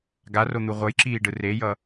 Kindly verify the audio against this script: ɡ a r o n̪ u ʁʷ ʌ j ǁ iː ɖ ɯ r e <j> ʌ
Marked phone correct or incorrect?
correct